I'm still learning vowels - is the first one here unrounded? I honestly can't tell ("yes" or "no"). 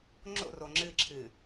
no